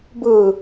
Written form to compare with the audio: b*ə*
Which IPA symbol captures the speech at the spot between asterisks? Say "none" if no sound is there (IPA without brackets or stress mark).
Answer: ɯ